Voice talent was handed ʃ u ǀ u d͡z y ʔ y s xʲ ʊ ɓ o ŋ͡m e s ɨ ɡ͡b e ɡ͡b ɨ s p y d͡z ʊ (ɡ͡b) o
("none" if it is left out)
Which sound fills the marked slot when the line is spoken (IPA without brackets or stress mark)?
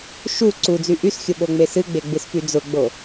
ɡ͡b